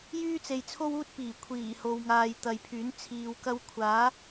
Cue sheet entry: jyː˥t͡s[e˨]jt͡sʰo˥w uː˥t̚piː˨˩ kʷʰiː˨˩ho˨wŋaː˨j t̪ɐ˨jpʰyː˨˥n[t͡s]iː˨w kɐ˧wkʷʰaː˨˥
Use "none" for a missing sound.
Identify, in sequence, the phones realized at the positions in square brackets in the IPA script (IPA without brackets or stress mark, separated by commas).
e˨, t͡sʰ